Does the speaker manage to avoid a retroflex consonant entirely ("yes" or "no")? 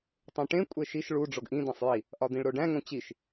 no